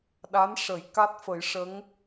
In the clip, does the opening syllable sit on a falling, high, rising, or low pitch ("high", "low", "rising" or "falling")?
rising